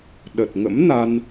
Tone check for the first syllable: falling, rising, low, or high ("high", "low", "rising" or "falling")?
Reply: low